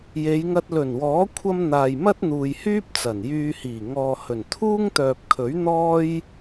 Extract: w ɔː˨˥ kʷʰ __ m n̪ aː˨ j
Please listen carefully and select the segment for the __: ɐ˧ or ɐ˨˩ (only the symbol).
ɐ˧